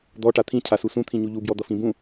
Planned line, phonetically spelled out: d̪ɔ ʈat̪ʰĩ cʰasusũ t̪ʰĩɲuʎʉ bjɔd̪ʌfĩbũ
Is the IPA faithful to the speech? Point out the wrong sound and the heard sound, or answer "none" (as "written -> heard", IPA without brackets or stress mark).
ʉ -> u